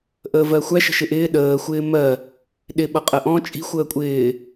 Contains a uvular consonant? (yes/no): yes